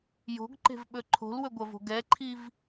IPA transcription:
j o̤ ɡ ǃ e̤ v ɓ ɵ ǃʰ o̤ l w ɵ ɡʷ ɐ v o̤ ɡ ɛ ǃʰ i v

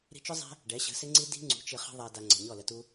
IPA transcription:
ɾ i̤˧ t͡ʃ ʊ˦ zˤ æ̤˦ | ɖ ɛ˨˦ ɕ ə̤˨˦ s ɪ˦ ŋ͡ǀ i˦ d i̤˦ ŋ͡ǀ ṳ˨˦ t͡ʃ ɪ˧ χ ə̤˦ ðˤ æ˧ d a˧ ŋ͡ǀ ə̤˨ ɲ ɔ˦˨ l ə˧ t u˦

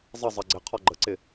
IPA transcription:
zˤ ə zˤ ʌ ɡ͡ǀ ɪ qʰ ɒ ɡ͡ǃ ə ǀ ɪ

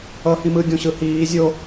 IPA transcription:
ʌ h ĩ m ɯ ɡʲ õ ɕ ɯ h iː zʲ o

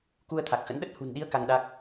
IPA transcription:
k u˧ ə̯ t̪ʰ a˨˩ k̚ x ə̰˧˥ n ɗ ə˦˥ t̚ h ṳ˨˩ n ɗ i˨˦ ə̯ k a˧ ŋ ɗ a˦˥ k̚

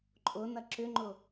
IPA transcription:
ǃʼ ʊ n ɐ ǁ ʏ ŋ͡ǃ ʊ

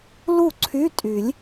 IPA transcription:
l u˥˩ ǀʰ y˧˥˧ tʼ y˨˩˦ lʲ

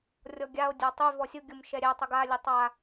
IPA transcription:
rʲ ɔ ɡʲ a o̯ dʲ a tˤ y v ɔ sʲ ʊ ɡʲ ʊ m ʃ ɛ ɾʲ ɛ tˤ ʊ ɡ a lʲ ʊ tˤ a

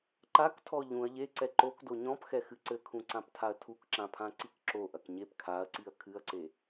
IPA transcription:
ǃ a k tʰ ɔ ʎ ũ ɐ̯ ʎ e ǀ ɛ ǃ o k d o ɲ ɔ̃ p x ɛ x ɨ ǀ ɘ kʰ ũ ǀ ã p tʰ a ɐ̯ tʰ u k ǁ ã pʰ ã ǀ i k ǁ o ʔ ɐ k ɲ e p kʰ a ɐ̯ ǀ i ɐ̯ kʰ ɨ ɐ̯ ǀ e

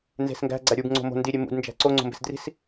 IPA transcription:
n z e̤ s ŋ ɡ æ̤ ɡ͡ǀ æ ɾʲ u b ŋ͡ǀ o̤ m o̤ n d i ɾʲ e m ṵ d n d͡ʒ æ̤ ǀ o ŋ͡ǀ o̤ m b e̤ s d r i̤ s

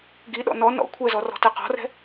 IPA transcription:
ɡ i ɗ ɔ̰ n ɔ n ɔ̰ kʷʰ ɛ z ɔ r ɔ̤ t ɛ q ɔ̤ r ɛ̤

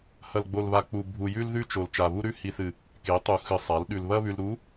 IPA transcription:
h ɐ˨ l ɡ͡b o˨ l β a˨ k͡p u˨ bʱ u˨ j ʉ˦ l ð ʉ˦ t͡ʃ o˨ l t͡ʃ a˨ β u˦ ɾ ʉ˦ h i˨ θ ɨ˨ | k e˨˦ tˤ u˨ x ɨ˨ sˤ a˨˦ l ɗ ʉ˨ l β ɐ˦ β ʉ˨ l ɾ u˨˦

